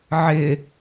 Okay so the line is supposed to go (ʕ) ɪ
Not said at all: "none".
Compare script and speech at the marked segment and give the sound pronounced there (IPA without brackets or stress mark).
ʕ